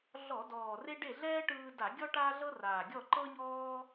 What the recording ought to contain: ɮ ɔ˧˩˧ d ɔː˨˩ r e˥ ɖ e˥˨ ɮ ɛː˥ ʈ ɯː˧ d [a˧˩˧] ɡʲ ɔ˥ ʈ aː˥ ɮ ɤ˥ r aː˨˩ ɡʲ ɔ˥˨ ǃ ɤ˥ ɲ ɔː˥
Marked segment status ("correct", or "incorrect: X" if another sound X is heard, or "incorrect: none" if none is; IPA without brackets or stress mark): correct